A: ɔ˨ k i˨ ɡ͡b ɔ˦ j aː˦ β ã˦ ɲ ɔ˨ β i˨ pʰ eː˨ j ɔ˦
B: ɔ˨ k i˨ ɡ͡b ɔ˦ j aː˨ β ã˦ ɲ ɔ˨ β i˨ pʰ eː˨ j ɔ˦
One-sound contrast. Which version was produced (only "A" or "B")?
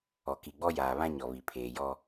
B